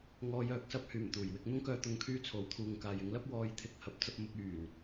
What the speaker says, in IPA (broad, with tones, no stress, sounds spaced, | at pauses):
ŋ ɔː˧ j œː˨˥ k̚ s ɐ˨˥ p̚ h yː˨˩ m t̪ uː˨˩ j w ɪ˥ k̚ n̪ ʊ˥ ŋ k œː˧ t̪ ʊ˧ ŋ kʰ yː˥ t͡sʰ o˨˥ w t̪ʰ uː˨ ŋ k aː˨ j ɪ˨˥ ŋ l ɐ˥ p̚ w ɔː˨˧ j t̪ʰ ɪ˨ k̚ h ɐ˨˥ p̚ t͡s ɐ˧ p̚ m ʊ˧ k̚ yː˨˩ n